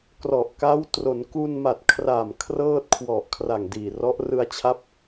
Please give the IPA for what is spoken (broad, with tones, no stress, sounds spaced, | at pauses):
k r ɔ˨˩ ʔ k a˦˥ w t r o˩˦ n k u˧ n m a˨˩ t̚ kʰ r a˨˩ m kʰ r ɤː˥˩ t̚ kʰ w ɔ˨˩ ʔ kʰ r a˨˩ ŋ d iː˨˩ r ɔ˦˥ ʔ r ɯ˧ a̯ t͡ɕʰ a˦˥ p̚